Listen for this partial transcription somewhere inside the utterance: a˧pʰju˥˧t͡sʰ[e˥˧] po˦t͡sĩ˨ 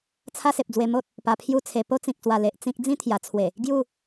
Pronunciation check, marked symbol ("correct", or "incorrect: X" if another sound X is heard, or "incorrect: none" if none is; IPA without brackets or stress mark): incorrect: e˧